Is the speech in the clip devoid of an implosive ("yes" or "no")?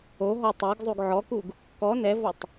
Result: yes